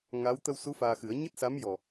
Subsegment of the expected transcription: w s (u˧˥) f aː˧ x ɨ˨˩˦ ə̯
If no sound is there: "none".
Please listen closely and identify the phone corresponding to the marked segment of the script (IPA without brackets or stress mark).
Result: u˧˥